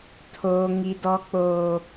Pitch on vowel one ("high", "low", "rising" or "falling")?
high